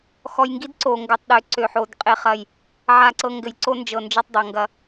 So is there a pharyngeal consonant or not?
yes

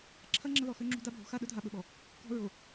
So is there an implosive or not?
yes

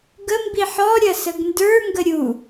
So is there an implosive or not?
no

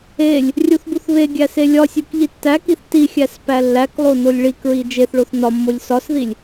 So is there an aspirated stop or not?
no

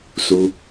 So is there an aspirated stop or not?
no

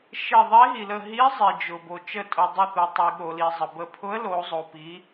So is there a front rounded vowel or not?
no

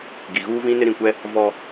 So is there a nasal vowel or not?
yes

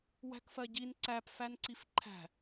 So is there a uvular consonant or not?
no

